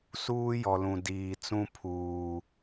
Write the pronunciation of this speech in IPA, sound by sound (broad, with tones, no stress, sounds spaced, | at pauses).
s uː˦ j ɔ˨ l ũ˨ d iː˨ t͡s ũ˦ pʰ uː˨